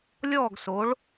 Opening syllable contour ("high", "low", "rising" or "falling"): falling